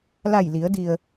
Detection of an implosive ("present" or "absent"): absent